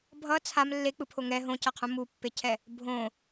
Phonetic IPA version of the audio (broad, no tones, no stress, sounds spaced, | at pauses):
bʱ ʌ t͡sʰ a m lː e k͡p ɯ pʰ o ŋ ɛ ɦ õ c ʌ qʰ ũ m u pː e cʰ ɛ | bʱ õ